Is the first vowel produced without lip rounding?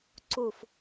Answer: no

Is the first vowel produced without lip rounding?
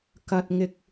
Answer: yes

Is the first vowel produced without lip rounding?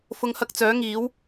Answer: no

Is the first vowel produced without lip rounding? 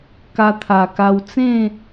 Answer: yes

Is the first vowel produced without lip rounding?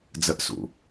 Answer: yes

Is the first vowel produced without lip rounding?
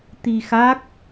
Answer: yes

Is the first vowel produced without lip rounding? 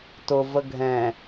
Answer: no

